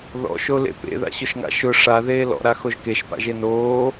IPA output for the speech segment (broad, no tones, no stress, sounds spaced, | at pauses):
ð ɔ̰ ʃ o l ḛ p ḛ ð a̰ ɕ ʊ ʃ ŋ a̰ ʃ ʊ ʂ a ð eː l ɔ̰ ɾ a x o ʒ k e ʃ p a̰ ʒ e n oː